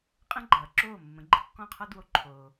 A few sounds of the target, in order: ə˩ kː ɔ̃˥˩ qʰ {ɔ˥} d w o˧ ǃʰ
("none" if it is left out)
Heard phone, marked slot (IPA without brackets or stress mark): ɔ˥